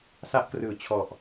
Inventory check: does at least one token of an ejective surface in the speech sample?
no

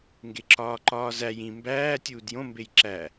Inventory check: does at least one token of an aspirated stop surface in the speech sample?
no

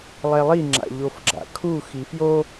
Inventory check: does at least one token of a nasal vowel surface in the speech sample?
no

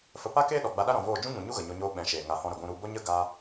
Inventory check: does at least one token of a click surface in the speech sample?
no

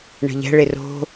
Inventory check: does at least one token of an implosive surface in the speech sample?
no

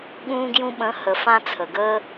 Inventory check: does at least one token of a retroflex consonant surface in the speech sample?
no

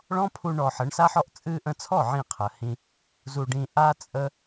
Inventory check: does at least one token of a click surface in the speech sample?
no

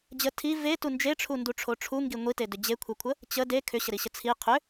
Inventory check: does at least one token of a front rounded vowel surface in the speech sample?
yes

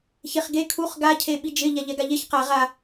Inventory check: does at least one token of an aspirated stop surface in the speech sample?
yes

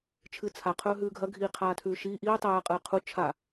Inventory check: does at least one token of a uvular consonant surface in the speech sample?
yes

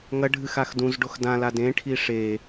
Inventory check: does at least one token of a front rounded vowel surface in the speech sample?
no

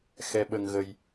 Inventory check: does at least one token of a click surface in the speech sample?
no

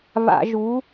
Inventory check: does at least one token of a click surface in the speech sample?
no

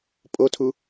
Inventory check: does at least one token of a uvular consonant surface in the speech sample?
no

